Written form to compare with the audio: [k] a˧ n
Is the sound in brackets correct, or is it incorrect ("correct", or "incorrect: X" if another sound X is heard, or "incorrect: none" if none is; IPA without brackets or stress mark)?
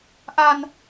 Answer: incorrect: ʔ